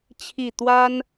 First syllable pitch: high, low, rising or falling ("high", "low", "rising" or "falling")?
falling